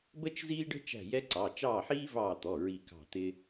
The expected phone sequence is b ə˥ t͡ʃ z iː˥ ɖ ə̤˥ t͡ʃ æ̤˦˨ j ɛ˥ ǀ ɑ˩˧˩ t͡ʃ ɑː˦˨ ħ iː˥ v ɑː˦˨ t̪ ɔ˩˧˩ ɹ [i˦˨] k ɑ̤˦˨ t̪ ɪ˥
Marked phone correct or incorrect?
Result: correct